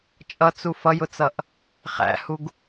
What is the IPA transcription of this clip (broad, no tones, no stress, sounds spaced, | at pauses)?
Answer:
t͡ʃʼ ʌ t͡s u f ʌ j ʊ t͡s ʌ ʔ | χ æ̰ h u ɡ